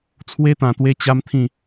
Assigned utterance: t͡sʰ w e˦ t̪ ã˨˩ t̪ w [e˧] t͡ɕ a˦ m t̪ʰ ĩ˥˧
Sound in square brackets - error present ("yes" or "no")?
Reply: yes